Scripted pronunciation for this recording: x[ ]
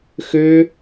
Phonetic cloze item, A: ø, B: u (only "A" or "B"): A